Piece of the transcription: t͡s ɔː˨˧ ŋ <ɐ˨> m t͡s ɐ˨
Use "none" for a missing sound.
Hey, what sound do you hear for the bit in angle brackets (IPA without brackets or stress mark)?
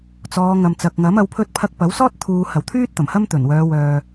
ɐ˨